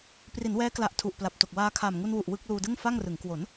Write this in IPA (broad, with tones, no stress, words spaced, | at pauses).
pri˩˦nwɛː˦˥kla˨˩ʔ tʰu˨˩ʔpla˨˩p̚to˨˩k̚ waː˧ kʰaː˨˩mŋu˧nwu˨˩ʔ wɯ˥˩k̚ luː˧dɯ˥˩ŋfa˥˩ŋrɯ˩˦ŋ kwo˩˦n